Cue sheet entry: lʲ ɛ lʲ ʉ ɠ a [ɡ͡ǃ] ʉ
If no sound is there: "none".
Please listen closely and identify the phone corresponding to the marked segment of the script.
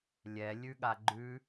ɡ͡ǃ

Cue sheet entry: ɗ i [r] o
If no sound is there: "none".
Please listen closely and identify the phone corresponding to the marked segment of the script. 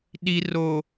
r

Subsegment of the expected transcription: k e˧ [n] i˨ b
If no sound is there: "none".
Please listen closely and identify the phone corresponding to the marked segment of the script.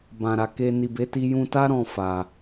n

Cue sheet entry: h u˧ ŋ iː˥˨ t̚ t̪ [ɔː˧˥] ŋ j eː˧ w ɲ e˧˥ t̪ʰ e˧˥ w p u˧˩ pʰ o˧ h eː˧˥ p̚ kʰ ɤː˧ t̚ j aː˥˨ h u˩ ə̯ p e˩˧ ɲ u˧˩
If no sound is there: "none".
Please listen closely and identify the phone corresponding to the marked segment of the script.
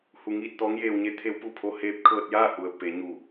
ɔː˧˥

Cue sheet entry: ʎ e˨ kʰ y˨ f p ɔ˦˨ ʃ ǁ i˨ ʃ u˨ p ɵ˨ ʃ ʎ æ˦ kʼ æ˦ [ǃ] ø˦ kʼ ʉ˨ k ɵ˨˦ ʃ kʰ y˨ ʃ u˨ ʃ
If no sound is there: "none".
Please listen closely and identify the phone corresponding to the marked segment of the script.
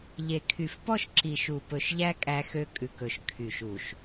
x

